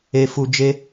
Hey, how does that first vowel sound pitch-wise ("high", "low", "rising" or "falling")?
low